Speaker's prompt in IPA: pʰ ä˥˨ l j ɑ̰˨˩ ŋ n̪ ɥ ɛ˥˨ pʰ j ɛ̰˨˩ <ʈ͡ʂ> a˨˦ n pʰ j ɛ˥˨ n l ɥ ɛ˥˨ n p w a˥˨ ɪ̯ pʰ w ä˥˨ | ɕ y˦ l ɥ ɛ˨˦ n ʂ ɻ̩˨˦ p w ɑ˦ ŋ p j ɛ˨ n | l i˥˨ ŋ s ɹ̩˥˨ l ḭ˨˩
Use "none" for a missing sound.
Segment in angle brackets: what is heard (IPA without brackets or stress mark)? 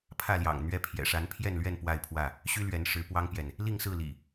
ʂ